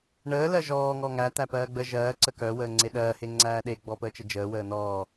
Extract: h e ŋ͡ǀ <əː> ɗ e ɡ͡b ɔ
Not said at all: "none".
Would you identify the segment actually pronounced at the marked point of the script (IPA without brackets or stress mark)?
æː